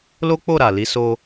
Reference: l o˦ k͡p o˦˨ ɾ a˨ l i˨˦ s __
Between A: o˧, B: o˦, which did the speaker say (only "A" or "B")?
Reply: A